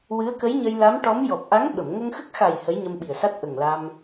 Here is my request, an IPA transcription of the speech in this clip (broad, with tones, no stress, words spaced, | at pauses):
wɨ˧˥ə̯kə˧˥jɲə˧jla˧˥m ʈɔ˧˥m jɔ˨˩p̚ʔa˧˥ŋ ɓə˨˩˨m ŋə˧ŋxə˦˥k̚xa˨˩j hə˧˥jɲə˧mɓi˨˩ə̯sa˦˥t̚ ʔə˨˩ŋla˧m